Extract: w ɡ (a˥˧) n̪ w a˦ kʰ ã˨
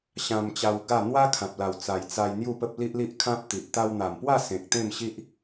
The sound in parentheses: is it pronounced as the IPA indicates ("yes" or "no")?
yes